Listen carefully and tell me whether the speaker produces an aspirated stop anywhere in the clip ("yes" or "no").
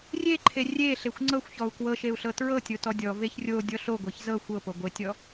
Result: yes